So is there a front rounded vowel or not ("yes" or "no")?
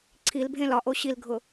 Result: no